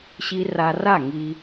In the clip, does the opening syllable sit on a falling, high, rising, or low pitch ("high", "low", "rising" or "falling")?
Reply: high